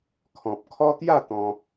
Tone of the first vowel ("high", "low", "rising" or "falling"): low